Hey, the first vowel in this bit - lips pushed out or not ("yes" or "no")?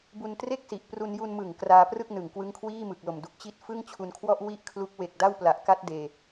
yes